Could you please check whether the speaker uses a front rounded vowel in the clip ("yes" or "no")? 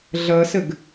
no